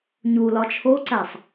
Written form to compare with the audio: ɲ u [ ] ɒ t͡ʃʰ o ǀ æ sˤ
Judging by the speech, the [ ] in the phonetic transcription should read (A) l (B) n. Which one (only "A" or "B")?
A